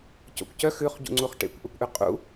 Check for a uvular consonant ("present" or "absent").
present